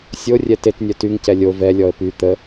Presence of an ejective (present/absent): absent